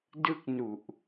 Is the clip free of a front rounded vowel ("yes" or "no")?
yes